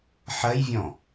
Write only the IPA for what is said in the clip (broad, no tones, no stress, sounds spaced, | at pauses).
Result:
ħ ɜ j vʲ ɔ̃